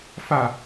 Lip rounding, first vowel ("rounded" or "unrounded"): unrounded